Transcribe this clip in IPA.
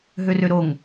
ɦ ø r ø ɾ o ŋ

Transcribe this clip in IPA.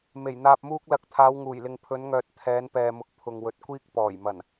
m e˨˩ j n̪ aː˧ p̚ m uː˥ k̚ l ɐ˨˥ k̚ t̪ʰ aː˨˧ w ŋ uː˨˩ j l ɪ˨ ŋ pʰ ɵ˨˧ n ŋ œː˨ t̚ t̪ʰ ɛː˨˧ n p ɛː˨ m ʊ˨˥ k̚ pʰ ʊ˨ ŋ w ɵ˨ t̚ kʷ iː˥ k̚ p ɔː˨˩ j m ɐ˨˩ n

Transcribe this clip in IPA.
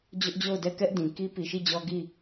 d͡ʑ ʊ˦ ʔ d͡ʑ o˦˨ ʊ̯ d ɛ˦˨ k ɛ˦ ʔ d ĩ˨ k i˦ p i˨ ʃ i˦˨ d͡ʑ ɔ˦ ɡ i˦˨

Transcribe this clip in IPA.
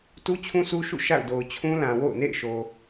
t u˦ t͡ɕʰ ũ˦ sʰ u˦ ʃ ṵ˦˨ ʃ a̰˦˨ ʊ̯ d o˨ ʊ̯ t͡ɕʰ ũ˦ l ã˨ w o̰˦˨ ʊ̯ n ḛ˦˨ ɪ̯ ʃ o˨

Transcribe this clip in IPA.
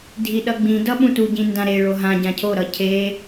dʱ i ɗ ʌ ɡ͡b ĩ d ʌ ɓ ũ t u ɟ ĩ n d ã ɾ e ɭ o ɦ ã ɟ ã cʰ o ɾ ʌ cʰ e

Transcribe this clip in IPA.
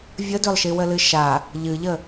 vʲ ə d ø lˠ ʃ i w ə l ɨ ʃ a | ʎ ɨ ʎ ə

